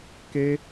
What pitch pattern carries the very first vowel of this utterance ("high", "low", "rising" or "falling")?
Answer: high